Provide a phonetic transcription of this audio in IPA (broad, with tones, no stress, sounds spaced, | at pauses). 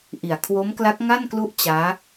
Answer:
ʔ i˨˩ a̯ kʰ w o˦˥ m k l a˦˥ k̚ ŋ a˥˩ n k l u˥˩ ʔ t͡ɕ aː˦˥